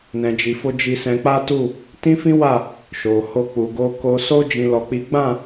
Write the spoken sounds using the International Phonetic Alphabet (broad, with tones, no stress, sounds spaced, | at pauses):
n ɛ̃˨ d͡ʒ i˨ f o˧ d͡ʒ i˧ s ɛ̃˧ k͡p a˦ t u˦˨ | t ĩ˦ f ĩ˦ w a˦˨ | ʃ o˨ h o˧ k͡p u˨ ɡ o˧ k o˧ s o˦ d͡ʒ ĩ˦ l ɔ˦ k͡p i˦ ɡ͡b ã˦˨